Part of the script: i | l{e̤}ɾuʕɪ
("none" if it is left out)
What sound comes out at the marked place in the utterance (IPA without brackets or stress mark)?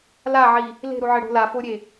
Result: e̤